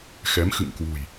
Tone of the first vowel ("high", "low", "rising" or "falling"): rising